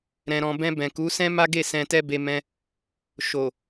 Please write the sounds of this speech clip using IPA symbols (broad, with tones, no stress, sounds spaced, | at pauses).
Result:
ɾ ɛ̃˨ ɾ ɔ̃˨ b ɛ̃˧ b ɛ̃˨ k u˨˦ s ɛ̃˦ m a˦ ɡ e˦˨ s ɛ̃˧ t ɛ˦ b e˧ m ɛ̃˧ | ʃ o˨